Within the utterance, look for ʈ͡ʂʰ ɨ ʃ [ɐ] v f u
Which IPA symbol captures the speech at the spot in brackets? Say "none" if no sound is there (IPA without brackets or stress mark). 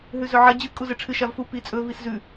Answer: a